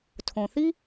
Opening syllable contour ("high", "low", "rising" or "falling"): low